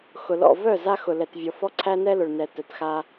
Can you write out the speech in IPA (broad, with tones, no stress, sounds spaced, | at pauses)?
x ʊ˨ l ɔ̰˦˨ v œ˦˨ z a˦ x ʊ˨ l ɛ˨ t vʲ ɔ˨ f ɔ˦ ǀʰ æ˦ n ɛ˦ l ʊ˨ ɭ n ɛ˨ t œ˨ t x a˦